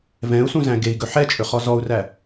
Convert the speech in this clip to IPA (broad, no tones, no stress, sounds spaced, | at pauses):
v ɛ̃ u̯ s ũ z æ̃ ɡ e i̯ ɡ ɵ ħ ɛ t͡ʃʼ ɵ χ ɔ z ɔ u̯ r æ